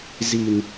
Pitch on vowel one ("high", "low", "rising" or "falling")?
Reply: low